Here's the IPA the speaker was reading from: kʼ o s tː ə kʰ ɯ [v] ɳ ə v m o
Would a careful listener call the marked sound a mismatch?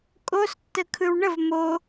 yes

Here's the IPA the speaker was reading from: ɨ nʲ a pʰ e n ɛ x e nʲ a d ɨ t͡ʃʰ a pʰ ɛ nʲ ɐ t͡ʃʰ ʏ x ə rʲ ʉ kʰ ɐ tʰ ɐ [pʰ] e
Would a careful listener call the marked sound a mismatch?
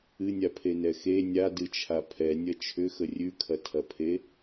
no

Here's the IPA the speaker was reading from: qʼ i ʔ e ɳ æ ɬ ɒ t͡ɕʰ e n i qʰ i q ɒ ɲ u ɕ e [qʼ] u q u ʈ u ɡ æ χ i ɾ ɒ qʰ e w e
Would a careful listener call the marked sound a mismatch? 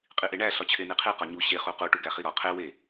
yes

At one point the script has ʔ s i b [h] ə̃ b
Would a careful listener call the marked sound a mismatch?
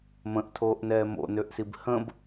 no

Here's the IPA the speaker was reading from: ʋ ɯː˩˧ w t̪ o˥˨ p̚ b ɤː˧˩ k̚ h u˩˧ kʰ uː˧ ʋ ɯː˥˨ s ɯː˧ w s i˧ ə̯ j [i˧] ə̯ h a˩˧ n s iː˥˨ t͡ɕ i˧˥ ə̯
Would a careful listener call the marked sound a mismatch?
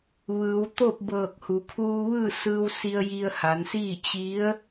no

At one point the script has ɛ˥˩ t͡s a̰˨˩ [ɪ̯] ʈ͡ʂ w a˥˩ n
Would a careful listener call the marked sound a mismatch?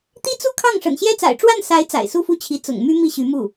no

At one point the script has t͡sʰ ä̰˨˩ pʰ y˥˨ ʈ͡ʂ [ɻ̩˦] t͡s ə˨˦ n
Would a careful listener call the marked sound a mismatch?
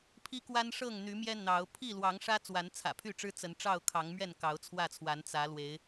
no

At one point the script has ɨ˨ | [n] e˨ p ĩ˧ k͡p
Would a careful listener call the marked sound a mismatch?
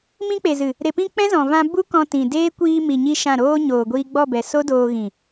yes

